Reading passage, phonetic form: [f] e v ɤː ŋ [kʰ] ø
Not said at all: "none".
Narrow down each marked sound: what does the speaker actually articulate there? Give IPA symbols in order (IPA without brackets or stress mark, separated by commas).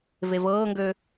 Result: v, ɡ